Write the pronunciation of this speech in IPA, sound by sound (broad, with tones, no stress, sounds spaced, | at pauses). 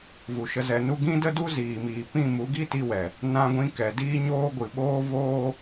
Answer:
v u˨ ʃ ə˧ z ɛ˨ n u˧ ɡ ĩ˦ d ə˦ d u˦ z iː˨ m iː˨ p ĩ˦˨ m u˨˦ ɡ i˦ t i˧ w ɛ˨ | n ã˧ ɡʷ ĩ˧ k ɛ˨ d iː˦ ɲ oː˦ ɡʷ ɨ˨ ɓ oː˦ v oː˦